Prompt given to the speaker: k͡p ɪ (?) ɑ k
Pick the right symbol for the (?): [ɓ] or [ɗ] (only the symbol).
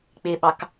ɓ